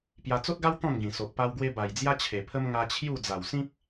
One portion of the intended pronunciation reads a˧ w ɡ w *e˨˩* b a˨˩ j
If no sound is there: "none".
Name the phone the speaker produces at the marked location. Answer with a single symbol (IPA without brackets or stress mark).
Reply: e˧